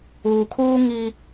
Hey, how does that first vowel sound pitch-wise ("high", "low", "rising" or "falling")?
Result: low